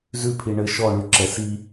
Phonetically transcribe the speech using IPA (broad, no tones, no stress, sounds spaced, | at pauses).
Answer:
z ʉ pʰ i ɳ ɘ ʃ ɔ ɳ ʉ ǁ ɛ s i